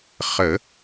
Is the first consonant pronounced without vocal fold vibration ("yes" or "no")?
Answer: yes